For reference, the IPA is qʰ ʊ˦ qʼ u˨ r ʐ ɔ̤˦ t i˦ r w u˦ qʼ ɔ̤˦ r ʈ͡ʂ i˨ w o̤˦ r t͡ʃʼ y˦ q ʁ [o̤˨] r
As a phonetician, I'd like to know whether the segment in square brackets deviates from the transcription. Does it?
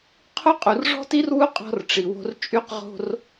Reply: yes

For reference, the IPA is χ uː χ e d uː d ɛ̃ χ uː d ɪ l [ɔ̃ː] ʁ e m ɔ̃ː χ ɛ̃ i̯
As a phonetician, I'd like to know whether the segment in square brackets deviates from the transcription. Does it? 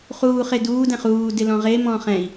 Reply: yes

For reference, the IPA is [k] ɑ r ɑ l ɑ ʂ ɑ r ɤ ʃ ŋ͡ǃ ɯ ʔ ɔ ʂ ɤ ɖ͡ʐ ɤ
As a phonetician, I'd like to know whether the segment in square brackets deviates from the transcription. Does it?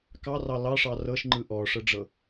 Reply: no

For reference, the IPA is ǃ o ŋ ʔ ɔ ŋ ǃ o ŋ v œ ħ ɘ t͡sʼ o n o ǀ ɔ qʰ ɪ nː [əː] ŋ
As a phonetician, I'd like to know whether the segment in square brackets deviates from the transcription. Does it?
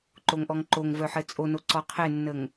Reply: yes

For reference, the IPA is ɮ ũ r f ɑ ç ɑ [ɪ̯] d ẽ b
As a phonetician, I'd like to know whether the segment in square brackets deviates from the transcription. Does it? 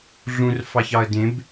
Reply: yes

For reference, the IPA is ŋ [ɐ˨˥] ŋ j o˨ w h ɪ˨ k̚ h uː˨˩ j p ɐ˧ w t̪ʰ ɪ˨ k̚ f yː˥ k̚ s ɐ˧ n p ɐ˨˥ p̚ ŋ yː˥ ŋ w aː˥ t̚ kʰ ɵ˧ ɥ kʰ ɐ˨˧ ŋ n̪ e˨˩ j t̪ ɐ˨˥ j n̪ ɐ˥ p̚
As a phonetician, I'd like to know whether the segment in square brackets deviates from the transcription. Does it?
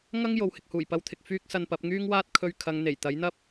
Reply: yes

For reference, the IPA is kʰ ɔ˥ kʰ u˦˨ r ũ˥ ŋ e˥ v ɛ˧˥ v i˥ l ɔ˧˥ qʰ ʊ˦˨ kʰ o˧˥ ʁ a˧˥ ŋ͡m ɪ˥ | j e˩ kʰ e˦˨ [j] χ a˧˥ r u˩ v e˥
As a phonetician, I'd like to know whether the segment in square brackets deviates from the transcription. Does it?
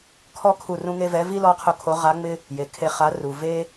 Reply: yes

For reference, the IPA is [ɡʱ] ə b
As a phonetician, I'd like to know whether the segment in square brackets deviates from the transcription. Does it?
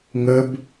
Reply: yes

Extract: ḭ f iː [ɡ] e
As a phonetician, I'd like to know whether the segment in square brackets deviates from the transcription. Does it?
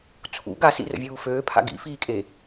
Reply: yes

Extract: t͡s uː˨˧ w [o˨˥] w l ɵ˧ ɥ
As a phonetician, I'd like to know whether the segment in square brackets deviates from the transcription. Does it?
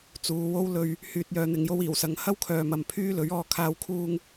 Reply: yes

